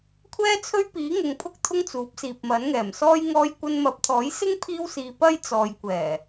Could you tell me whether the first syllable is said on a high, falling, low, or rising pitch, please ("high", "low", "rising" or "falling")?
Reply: high